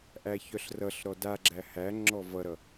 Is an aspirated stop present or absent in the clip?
absent